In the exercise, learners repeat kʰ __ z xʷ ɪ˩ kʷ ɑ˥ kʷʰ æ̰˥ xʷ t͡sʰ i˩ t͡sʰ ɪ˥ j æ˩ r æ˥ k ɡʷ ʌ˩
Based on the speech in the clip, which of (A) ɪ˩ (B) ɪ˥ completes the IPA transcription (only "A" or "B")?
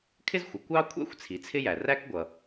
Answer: B